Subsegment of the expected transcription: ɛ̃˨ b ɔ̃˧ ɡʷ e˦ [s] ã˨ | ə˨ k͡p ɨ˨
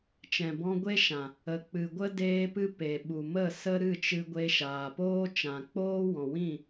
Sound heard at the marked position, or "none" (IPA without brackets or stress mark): ʃ